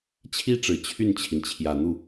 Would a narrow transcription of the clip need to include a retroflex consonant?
yes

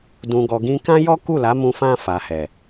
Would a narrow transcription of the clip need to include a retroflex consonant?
no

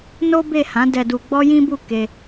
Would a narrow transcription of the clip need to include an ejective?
no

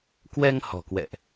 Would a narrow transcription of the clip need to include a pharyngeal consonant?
no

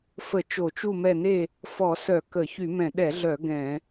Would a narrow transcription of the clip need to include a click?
no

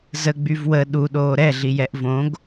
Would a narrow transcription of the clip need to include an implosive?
yes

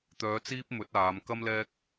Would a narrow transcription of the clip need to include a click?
no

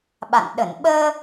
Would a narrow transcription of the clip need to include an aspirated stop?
no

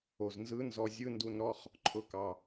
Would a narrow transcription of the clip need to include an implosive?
no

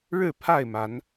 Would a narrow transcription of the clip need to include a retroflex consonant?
yes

